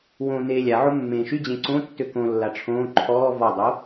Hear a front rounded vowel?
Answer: yes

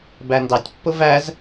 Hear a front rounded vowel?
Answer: no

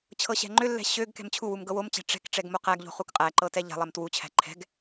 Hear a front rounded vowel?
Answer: yes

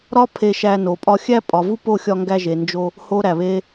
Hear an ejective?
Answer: yes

